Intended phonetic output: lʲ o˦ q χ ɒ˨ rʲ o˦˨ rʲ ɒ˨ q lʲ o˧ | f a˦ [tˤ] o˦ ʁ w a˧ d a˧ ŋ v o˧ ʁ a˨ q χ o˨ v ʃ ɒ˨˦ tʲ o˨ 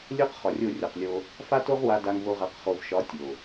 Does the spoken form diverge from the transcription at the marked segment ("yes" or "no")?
yes